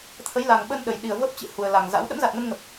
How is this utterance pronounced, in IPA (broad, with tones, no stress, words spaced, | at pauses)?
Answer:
t̪ʰə˨˦jla˨˩ŋɓə˧n ɗə˨˩jɗi˨˩ə̯ və˦˥p̚t͡ɕɨ̰˧˨hu˨˩ə̯la˨˩ŋ za̰˧˥w ɗə̰˧˥mza˨˩t̚ŋə˧nŋə˨˩p̚